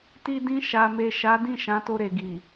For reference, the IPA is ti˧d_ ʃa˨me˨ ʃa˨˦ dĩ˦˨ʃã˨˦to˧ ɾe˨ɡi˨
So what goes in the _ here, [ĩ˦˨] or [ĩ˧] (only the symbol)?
ĩ˧